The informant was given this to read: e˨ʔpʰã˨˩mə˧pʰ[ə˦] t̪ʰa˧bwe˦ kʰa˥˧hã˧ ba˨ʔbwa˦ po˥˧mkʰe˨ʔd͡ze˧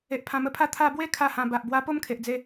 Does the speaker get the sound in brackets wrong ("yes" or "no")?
yes